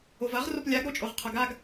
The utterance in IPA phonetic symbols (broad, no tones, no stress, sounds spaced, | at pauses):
o v ɐ ʁ r o p lʲ a ɡ ɾ o t͡ʃʼ o ʁ qʰ ɐ ɡ a ɡ